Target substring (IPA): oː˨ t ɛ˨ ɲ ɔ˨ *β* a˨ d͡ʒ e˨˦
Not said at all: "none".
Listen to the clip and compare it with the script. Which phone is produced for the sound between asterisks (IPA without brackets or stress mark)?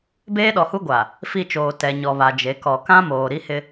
β